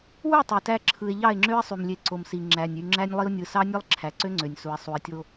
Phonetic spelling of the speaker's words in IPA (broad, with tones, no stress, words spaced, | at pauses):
wu˦˨ tˤø˨tæ˦ ǁʰɯ˨e̯ ʎɑ˦˨e̯ŋ͡ǁø˦e̯sˤy˨m lʲe˨ ǀo˨msi˨ ŋ͡ǁæ˨nʲ y˨ ŋ͡ǁæ˦nʲlˠi˦o̯ nʲɯ˨sɑ˦nʲɯ˦lˠ ǁʰæ˨ǀø˦ŋ͡ǀø˨nʲsu˨e̯ sˤu˨e̯tʲo˦